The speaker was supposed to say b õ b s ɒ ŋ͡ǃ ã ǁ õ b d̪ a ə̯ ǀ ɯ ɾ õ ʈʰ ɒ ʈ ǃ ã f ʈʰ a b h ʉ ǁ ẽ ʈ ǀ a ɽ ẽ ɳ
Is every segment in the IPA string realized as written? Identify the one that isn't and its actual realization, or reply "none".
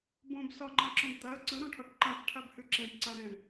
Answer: none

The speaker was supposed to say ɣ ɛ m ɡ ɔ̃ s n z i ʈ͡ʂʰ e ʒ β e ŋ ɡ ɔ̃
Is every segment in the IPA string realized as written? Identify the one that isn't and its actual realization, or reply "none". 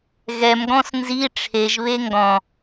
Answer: none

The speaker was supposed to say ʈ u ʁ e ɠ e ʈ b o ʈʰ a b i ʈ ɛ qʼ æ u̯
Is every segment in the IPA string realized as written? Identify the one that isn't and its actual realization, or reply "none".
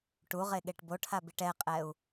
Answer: æ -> ɛ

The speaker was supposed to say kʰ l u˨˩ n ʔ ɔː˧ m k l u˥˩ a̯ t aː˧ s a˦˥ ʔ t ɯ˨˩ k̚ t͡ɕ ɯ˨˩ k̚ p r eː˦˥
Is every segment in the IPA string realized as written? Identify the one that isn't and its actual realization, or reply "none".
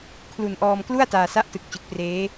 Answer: none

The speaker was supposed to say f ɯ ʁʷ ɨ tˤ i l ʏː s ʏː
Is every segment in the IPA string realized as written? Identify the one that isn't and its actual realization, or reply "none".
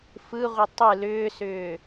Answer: i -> ɨ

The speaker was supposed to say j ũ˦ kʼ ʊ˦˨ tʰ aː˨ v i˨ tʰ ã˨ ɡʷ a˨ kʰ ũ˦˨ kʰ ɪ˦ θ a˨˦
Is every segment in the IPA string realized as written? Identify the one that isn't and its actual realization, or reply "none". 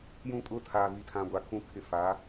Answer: θ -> f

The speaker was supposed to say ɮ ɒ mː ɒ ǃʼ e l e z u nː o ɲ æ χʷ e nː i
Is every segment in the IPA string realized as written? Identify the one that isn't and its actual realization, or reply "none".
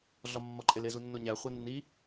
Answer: none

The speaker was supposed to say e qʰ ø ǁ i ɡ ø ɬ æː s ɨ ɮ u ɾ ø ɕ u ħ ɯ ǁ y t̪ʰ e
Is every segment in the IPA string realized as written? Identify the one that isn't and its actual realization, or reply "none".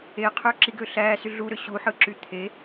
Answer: ɨ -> y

